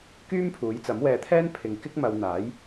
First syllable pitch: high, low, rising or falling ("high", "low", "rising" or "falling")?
high